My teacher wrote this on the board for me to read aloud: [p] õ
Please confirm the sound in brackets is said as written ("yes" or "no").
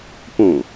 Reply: yes